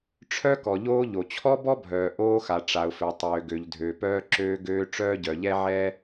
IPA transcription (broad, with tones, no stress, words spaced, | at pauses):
ʈ͡ʂʰœ˥ kɔ˩ʎoː˥ʎo˩ t͡ɕʰɔ˥bɔ˥bʱœː˩ ʔoː˥xa˩ ʈ͡ʂa˩ʊ̯fø˩ tˤøː˩ɡø˩ʎdʱø˩ pœː˥ǁøː˥ɡøː˥ ʈ͡ʂœː˥ɟœ˩ʎɛ˥ ʕɛ˥